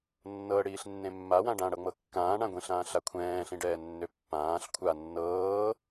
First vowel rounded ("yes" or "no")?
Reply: no